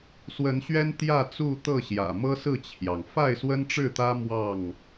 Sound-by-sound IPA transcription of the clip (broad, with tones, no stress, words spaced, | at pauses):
swə˨˦nɕɥɛ˦n t̪jä˥˨t͡su˥˨t̪ɤ˥˨ ɕjä̰˨˩mɤ˦sɹ̩˥˨t͡ɕʰjɑ˩ŋ fa˥˨ɪ̯swə˦nʈ͡ʂɻ̩˥˨t̪ä˦ mwɑ˥˨ŋ